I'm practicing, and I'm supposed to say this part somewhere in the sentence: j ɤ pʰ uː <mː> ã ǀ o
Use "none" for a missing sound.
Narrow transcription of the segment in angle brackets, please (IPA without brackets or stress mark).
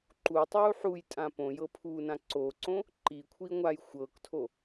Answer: n